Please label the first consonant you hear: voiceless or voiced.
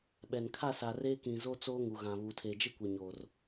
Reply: voiced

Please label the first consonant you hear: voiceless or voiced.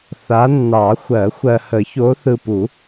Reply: voiceless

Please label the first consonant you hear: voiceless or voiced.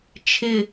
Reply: voiceless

